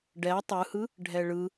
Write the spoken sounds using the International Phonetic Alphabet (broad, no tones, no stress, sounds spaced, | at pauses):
ɖ ɛ tˤ ɯ h ɯ | ɖʱ ɛ ɭ ɯ